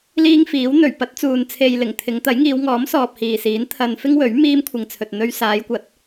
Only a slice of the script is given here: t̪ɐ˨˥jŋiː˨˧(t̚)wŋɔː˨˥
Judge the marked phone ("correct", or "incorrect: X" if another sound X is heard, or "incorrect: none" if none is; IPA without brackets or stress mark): incorrect: none